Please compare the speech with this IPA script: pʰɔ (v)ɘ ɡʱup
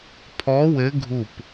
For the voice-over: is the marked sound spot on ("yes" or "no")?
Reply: no